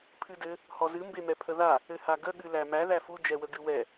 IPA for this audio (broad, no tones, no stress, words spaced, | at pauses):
pʰɨdɘ | hɔzɨ mbemɛpʰəða | ɘhaɡə ɠɨlæmæ ðæfu d͡ʒɛwəɡɨwɛ